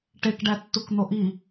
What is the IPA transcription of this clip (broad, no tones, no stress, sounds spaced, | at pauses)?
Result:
ʈ e k ɖ æ tː u k n̪ o ʔ i